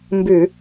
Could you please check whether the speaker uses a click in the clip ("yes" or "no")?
no